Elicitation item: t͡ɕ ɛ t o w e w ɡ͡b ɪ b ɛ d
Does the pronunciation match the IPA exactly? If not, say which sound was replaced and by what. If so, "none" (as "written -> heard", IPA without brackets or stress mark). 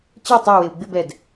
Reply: t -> tˤ